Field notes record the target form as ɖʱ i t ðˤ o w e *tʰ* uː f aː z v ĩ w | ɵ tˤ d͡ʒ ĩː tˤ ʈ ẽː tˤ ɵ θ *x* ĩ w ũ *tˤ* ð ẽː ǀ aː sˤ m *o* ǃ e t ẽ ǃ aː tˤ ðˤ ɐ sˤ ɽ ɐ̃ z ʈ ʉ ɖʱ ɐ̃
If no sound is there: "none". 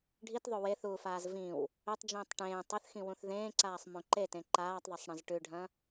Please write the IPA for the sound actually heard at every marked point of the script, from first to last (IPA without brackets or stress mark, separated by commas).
θ, x, θ, õ